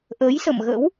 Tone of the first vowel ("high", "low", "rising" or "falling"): rising